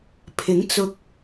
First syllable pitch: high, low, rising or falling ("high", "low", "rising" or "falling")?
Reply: rising